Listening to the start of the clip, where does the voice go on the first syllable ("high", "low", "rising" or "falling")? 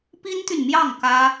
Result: high